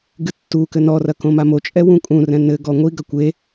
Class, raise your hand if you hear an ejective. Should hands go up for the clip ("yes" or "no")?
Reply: yes